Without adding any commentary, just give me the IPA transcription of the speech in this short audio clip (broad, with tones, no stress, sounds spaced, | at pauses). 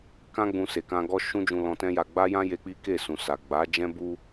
k ã˧ ɡ͡b ũ˨ s e˨ k ã˧ ɡ ɔ˦ ʃ ũ˦ d͡ʒ ũ˧ l ɔ̃˧ t ɛ̃˦ j a˧ ɡ͡b a˦ j ã˦ j e˧ k͡p i˦ k e˦˨ s ũ˨ s a˨ ɡ͡b a˨˦ d͡ʒ ɛ̃˦ b u˦